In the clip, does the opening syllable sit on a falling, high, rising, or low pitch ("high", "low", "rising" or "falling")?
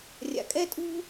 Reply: low